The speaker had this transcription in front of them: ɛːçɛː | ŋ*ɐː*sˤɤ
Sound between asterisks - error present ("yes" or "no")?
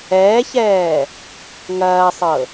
no